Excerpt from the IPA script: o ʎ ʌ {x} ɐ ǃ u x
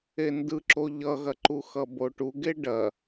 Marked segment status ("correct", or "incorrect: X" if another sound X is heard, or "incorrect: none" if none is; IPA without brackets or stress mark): incorrect: ɣ